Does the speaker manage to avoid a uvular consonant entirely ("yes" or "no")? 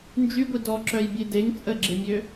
yes